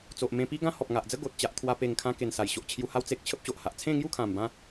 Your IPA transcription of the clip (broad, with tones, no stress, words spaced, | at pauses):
t͡so˨ʔmẽ˧pi˦ɡã˦ hɔ˨p̚ ŋa˨ʔd͡zə˦ ɡo˨t̚ t͡ɕa˦ʔt̪ʰwa˦ pe˨˩ŋ kʰã˧ke˨˩n sa˨˩jɕo˨ʔt͡ɕʰju˧ha˦w t͡se˨k̚ t͡ɕʰə˦p̚ɕo˨ʔha˨ʔ t͡sʰẽ˥˧ŋju˥˧kʰã˨˩mbã˧